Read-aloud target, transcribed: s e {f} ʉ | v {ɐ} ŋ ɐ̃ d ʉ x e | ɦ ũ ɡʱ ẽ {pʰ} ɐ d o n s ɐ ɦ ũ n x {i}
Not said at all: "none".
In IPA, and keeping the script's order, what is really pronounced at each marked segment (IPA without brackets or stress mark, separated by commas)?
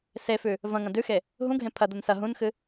f, ɐ̃, pʰ, ɨ